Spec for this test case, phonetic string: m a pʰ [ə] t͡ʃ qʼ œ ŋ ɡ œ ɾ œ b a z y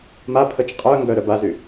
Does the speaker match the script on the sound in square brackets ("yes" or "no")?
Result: yes